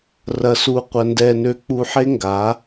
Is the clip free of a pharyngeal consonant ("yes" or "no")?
no